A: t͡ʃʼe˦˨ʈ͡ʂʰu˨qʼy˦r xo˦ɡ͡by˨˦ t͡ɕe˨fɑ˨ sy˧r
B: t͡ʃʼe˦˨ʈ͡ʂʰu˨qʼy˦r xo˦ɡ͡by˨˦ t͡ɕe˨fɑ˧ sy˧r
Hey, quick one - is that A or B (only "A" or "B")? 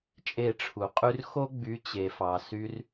A